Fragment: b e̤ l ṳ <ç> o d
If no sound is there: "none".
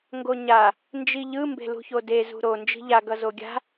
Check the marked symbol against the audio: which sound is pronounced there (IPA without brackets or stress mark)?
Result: ç